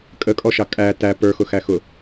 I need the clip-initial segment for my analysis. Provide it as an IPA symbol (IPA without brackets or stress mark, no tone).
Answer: kʼ